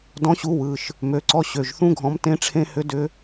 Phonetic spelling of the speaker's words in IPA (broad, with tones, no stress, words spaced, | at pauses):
dɔ̃˨˥ɕu˨˥ wɯ˩˧˩ʃ | mø˩˧˩ǀɔ˨˥ ɕø˩˧˩ʒθũ˦˥ɡʱɔ̃˨˥m tẽ˦˥ʈ͡ʂʰẽ˦˥hʏ˦˥dʏ˦˥